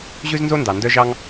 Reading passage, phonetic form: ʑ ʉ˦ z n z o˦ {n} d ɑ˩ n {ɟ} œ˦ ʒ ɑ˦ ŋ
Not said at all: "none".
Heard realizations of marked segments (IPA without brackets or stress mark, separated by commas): n, d